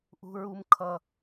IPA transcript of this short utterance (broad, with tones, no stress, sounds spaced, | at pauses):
ʔ ṳ˦ ɹ u˦ m kʰ ʌ˦